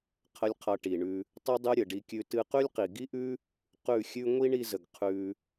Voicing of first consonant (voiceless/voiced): voiceless